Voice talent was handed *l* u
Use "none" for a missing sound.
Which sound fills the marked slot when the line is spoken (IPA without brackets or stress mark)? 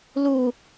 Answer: l